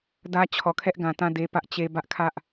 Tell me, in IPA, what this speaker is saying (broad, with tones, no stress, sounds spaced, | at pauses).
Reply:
d ä˦ t͡ɕʰ ɔ˨ kʰ ɛ˦ ʔ ɡ ã˨ t ã˦˨ d e˦ p ä˦ ʔ t͡ɕ e˦ b ä˦ ʔ kʰ ä˦ ʔ